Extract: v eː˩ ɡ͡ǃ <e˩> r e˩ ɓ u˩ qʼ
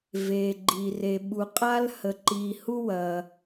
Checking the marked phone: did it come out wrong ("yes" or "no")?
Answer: yes